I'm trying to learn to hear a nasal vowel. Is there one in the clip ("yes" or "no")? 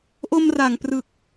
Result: no